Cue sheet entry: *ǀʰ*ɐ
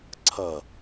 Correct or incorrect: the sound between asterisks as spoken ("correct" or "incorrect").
correct